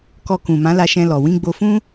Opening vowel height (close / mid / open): mid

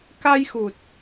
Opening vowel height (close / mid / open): open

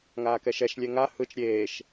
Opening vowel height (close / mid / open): open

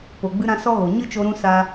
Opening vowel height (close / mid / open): mid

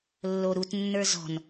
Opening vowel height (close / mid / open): mid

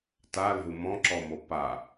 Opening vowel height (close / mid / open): open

